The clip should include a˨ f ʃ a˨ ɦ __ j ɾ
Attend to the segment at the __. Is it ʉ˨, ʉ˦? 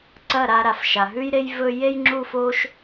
ʉ˦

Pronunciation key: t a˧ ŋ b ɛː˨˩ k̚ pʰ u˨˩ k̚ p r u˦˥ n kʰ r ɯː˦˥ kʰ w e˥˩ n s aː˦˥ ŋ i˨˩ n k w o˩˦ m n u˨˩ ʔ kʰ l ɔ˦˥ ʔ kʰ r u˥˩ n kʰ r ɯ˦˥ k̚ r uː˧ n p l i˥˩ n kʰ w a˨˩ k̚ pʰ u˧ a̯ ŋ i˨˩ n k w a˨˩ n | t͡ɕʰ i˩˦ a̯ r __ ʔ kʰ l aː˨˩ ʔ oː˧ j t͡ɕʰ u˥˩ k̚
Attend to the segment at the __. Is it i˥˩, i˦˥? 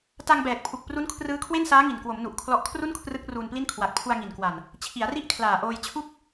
i˥˩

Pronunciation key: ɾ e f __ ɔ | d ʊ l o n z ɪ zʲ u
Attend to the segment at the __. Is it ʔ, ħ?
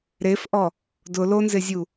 ʔ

